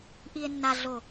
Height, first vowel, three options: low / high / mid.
high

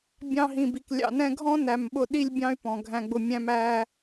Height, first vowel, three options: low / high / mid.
low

